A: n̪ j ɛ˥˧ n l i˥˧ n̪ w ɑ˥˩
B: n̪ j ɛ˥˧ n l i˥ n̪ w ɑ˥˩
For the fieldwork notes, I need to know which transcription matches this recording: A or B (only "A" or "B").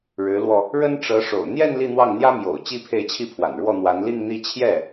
A